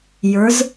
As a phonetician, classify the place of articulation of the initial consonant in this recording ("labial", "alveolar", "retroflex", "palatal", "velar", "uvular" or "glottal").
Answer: palatal